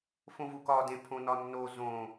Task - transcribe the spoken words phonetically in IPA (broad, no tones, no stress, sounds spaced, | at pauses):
f õ v u k ɒ d ẽ pʰ õ n ɒ nː o z õ